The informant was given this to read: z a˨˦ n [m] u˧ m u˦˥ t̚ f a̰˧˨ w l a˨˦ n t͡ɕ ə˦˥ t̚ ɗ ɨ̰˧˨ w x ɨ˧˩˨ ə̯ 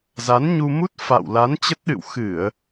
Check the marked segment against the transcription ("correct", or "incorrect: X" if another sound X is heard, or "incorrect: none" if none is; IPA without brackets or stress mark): incorrect: ɲ